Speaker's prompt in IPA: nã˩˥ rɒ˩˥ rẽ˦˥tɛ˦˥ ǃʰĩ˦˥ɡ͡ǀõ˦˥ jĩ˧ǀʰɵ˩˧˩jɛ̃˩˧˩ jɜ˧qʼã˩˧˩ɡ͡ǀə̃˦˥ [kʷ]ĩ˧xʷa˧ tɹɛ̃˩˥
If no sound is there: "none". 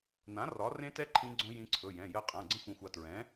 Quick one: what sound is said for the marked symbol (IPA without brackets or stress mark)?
xʷ